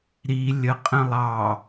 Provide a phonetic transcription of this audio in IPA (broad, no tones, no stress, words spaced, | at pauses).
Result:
ɾi lʲəqʼə̃ lˠɑ